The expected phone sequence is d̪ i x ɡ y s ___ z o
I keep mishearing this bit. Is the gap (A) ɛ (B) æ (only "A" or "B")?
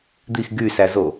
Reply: B